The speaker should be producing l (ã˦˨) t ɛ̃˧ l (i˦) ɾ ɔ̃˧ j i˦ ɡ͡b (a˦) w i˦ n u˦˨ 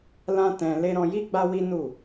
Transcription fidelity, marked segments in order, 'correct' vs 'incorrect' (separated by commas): incorrect, incorrect, correct